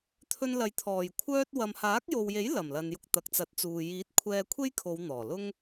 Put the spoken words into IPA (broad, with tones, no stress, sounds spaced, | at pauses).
t̪ʰ ɵ˧ n l ɐ˨˧ j t̪ʰ ɔː˨˩ j kʷʰ œː˥ t̚ w ɐ˨ m h aː˨˥ k̚ j o˨ w j e˨˥ j l ɐ˨˩ m l ɐ˨ n j ʊ˧ k̚ t̪ ɐ˨ k̚ t͡s ɐ˨˥ t̚ t͡s uː˨ j iː˨˥ t̚ kʷʰ ɛː˧ kʷʰ e˥ j kʰ o˨˧ w n̪ ɔː˨˩ l ʊ˥ ŋ